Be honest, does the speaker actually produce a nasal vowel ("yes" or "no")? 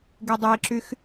no